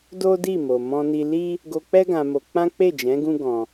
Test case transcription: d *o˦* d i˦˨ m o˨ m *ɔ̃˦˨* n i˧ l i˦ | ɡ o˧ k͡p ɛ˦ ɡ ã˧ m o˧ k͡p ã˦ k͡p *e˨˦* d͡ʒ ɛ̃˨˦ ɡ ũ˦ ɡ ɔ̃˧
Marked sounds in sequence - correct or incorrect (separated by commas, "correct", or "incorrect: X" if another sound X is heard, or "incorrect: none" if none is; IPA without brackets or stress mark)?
correct, incorrect: ɔ̃˧, incorrect: e˦˨